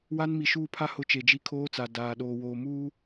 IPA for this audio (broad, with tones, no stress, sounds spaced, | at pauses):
w a˦ n m i˨ ʃ uː˦˨ pʰ a˦ h ʊ˦˨ t͡ʃ e˨ d͡ʒ i˦ kʰ oː˦ t͡s a˨ d aː˨ ɗ oː˨ w oː˨ m uː˦